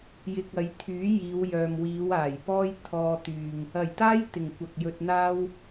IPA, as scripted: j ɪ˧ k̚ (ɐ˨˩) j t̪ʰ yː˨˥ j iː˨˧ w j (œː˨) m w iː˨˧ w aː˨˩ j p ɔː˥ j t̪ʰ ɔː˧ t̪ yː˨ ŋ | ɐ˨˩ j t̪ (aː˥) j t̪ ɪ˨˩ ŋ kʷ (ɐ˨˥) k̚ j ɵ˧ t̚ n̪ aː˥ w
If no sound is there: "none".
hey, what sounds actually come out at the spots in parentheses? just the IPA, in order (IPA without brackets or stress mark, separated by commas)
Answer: ɐ˨˧, œː˨, aː˥, ɐ˨